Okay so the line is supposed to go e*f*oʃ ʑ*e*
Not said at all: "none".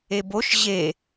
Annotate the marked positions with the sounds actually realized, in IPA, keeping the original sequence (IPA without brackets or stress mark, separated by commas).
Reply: b, e